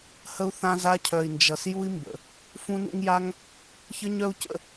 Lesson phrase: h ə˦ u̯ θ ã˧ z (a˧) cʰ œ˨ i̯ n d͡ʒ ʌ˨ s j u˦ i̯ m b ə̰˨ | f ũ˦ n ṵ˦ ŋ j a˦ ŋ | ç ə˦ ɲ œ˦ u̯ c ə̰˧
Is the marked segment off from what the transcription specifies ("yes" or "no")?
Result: no